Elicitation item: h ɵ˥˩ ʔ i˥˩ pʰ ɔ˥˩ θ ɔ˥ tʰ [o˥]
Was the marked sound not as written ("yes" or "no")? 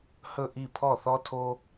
no